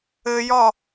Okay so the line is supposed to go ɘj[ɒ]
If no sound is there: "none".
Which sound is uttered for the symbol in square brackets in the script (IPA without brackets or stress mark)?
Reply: ɒ